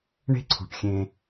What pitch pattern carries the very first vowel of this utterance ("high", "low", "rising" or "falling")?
high